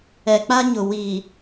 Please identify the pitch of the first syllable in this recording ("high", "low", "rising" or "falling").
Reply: low